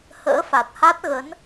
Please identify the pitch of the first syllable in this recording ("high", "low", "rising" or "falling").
rising